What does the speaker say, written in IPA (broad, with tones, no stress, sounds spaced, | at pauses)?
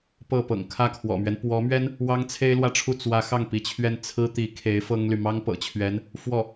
p ɤ˥˩ p ɤ̰˨˩ ŋ kʰ ä˥˩ kʰ w ɔ̰˨˩ m ɥ ɛ˦ n p w ɔ˧˥ m ɥ ɛ˥ n | w ɑ˥ ŋ t͡sʰ e˥ ɪ̯ l w ä˥˧ ʈ͡ʂʰ u˥˩ t͡s w ä˧˥ x ɑ˥˩ ŋ p i˧˥ t͡ɕʰ ɥ ɛ˥˩ n t͡sʰ ɹ̩˥ t̪ i˧˥ kʰ e˧˥ ɪ̯ f ɤ˥ ŋ l y˨ m ɑ˥ ŋ p ɤ̰˨˩ t͡ɕʰ ɥ ɛ˧˥ n | f w ɔ˥˩